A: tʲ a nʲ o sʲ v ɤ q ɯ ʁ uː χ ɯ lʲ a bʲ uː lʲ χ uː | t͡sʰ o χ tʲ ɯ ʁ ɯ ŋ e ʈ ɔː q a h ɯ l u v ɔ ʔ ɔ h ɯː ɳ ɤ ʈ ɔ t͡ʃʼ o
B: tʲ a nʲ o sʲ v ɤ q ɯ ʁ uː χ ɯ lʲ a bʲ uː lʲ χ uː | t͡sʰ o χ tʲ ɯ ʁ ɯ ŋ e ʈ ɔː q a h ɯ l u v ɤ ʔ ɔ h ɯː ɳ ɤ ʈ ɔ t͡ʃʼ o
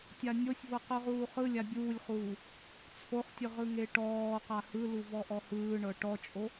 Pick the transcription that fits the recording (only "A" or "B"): A